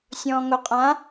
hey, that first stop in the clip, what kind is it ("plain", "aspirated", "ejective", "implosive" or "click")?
ejective